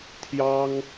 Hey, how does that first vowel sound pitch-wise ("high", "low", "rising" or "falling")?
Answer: high